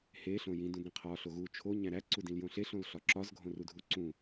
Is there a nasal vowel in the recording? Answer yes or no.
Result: yes